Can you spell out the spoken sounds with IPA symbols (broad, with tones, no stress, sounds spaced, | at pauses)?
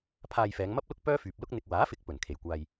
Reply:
pʰ aː˧ j f ɛː˨˧ ŋ m ɐ˥ p̚ l ʊ˥ k̚ p œː˥ f yː˨ p̚ l ʊ˥ k̚ n̪ ɪ˧ k̚ w aː˨˥ f ɪ˨˥ k̚ p ɵ˨˩ n kʰ e˨˩ j kʷ aː˧ j